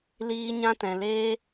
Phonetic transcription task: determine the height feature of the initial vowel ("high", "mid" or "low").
high